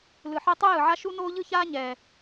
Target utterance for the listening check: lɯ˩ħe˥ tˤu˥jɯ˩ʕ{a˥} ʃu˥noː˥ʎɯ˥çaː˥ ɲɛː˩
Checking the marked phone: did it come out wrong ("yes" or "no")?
no